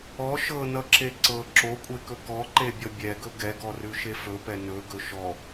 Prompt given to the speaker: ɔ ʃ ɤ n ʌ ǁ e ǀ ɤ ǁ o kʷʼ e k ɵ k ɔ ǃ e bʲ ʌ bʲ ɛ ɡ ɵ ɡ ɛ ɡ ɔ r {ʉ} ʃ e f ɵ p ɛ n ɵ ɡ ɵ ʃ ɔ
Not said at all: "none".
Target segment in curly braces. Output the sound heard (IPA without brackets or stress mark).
ʉ